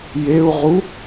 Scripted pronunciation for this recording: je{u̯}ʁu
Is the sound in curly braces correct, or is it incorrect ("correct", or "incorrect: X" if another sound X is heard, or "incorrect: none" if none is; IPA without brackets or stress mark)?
correct